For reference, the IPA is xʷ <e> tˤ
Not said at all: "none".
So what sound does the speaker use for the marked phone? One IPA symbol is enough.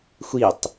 i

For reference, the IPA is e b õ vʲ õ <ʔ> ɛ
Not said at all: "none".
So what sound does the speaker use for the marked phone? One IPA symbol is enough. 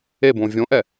ʔ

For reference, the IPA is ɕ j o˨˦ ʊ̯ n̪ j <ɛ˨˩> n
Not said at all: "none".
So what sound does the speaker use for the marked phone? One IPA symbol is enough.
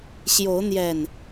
ɛ˨˩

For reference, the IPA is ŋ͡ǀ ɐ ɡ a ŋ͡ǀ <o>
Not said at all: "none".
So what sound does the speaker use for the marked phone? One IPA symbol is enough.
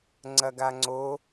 o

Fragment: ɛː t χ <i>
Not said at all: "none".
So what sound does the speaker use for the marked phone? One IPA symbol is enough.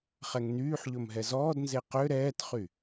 y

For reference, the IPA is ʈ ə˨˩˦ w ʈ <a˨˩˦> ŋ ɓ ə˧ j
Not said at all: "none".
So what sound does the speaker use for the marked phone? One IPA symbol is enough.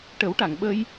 a˨˩˨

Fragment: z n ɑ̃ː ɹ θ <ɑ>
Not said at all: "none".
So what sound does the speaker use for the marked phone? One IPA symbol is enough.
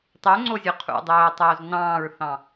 ɑ̃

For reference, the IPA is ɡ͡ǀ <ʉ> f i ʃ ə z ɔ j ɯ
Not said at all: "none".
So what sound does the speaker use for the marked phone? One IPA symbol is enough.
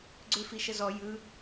ʉ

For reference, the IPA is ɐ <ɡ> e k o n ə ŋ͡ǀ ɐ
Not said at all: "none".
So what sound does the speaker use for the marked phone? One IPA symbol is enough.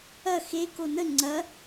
x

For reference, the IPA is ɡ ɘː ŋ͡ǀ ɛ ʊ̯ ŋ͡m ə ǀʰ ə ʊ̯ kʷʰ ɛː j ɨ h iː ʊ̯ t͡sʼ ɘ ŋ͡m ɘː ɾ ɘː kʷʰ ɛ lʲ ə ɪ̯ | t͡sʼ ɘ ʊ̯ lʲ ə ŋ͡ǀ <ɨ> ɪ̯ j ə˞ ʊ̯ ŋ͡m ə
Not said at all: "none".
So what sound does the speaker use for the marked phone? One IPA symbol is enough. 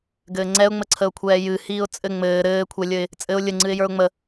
ɨ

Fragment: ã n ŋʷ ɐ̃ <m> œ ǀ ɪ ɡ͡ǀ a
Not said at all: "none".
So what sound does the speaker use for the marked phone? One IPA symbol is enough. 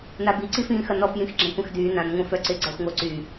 f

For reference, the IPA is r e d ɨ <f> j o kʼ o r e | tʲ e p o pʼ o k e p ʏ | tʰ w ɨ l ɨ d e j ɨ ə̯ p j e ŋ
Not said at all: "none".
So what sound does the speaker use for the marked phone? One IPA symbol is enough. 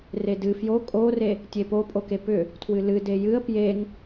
f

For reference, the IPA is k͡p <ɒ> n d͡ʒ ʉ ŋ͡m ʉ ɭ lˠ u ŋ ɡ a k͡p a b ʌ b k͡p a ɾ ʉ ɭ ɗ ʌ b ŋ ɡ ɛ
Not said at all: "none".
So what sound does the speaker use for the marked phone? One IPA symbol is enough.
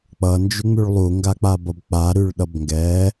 ʌ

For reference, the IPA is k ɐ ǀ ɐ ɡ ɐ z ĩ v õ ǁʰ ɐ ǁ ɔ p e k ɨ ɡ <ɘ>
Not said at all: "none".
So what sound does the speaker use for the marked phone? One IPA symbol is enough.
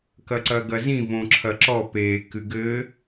ɘ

